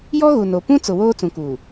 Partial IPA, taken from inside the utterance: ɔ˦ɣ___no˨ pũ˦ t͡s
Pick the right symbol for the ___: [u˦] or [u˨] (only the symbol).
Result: u˨